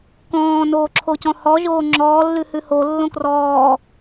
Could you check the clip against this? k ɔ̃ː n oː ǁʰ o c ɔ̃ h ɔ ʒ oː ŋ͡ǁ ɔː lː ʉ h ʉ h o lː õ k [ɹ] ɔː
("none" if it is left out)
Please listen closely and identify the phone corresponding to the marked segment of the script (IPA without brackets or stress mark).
r